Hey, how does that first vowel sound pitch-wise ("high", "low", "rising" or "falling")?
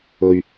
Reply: low